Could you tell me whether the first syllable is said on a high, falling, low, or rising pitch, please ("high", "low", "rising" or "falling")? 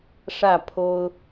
falling